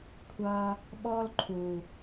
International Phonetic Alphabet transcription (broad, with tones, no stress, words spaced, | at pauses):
kʷʰʌ˧ | ɓɔ˦lǃʰu˨